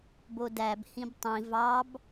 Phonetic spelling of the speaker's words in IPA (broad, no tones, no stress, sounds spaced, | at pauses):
b o d æ b h ĩ b tˤ ĩ v ɑ b